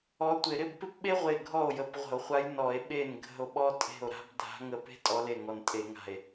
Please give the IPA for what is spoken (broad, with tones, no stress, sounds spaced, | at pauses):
ɔ˧˥ tʷ ɪ˧˩˧ ɾ ɪ˥˩ b p ɪ˥ p ɓ e˥ ʁʷ e˧˩ ɡʱ ɔ˥˩ o̯ j ə˧˩˧ p ʁʷ ə̤˧˩˧ o̯ χʷ a˧˥ j n ɔ˧˩˧ e̯ ɓ e˥˩ n ɡʱ ə̤˥˩ o̯ ɓ ɔ˥ tʼ e̤˥˩ o̯ ɾ a̤˥ b dʱ a̤˧˥ ŋ ə˧˥ p e̤˥ tʼ ɔ˧˥ l e˥˩ ŋ ɔ˧˩ n tʼ e˧˩˧ ŋ a̤˧˩ e̯